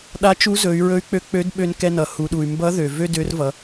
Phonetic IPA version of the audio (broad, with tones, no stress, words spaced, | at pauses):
ɗa˧˥t͡ʃu˧˥zɵ˩˧y̯ ɹɵ˧˥y̯k͡pø˧˥k͡pø˧˥d ɓø˧nkɛ˧nʌ˩ hu˩˧ɗu˩y̯ mbʌ˧˥ðø˩ vø˥dø˧˥rvʌ˩˧